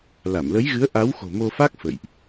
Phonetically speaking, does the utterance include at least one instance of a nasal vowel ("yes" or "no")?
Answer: no